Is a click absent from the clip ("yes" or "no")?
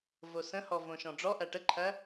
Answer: no